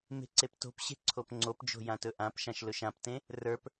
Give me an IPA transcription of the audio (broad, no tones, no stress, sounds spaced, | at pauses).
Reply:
m e̤ ǀ e p t o̤ p ɕ e̤ ǀʰ o p ŋ͡ǀ o p d͡ʒ o̤ j ã t ɵ ʔ ã p ʃ ã ʃ l ɵ ʃ ã p t ẽ | r ə˞ p